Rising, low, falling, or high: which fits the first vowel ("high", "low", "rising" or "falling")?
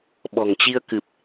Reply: low